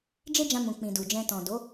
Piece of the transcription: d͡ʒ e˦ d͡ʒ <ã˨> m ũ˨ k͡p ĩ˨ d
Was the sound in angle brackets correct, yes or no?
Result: no